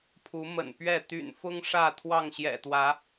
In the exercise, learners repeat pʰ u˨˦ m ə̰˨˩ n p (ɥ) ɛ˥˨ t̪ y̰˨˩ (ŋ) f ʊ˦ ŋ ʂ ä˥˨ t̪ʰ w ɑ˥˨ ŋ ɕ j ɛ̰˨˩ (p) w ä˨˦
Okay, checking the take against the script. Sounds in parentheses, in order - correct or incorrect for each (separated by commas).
correct, incorrect, incorrect